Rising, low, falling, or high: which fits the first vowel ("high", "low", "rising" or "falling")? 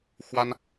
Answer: high